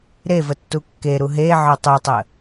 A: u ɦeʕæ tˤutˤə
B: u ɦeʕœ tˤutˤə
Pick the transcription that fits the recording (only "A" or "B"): B